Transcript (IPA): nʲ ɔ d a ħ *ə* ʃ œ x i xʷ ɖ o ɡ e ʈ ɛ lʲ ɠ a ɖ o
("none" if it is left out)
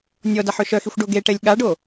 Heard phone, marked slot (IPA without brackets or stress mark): ø